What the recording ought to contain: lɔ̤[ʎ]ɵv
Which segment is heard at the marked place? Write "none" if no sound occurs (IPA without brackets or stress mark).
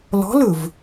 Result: l